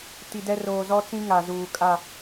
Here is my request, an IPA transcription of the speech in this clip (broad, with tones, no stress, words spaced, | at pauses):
ti˨dɛ˦ roː˨ zɔ˦t͡sĩ˦ ŋa˨ zuː˨kʼa˦˨